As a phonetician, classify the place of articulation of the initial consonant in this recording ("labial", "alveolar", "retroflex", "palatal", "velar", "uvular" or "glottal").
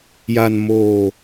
palatal